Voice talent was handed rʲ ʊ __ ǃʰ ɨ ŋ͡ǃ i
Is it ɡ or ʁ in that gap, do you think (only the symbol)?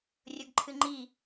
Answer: ɡ